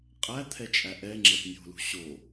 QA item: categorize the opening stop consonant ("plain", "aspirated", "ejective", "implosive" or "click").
ejective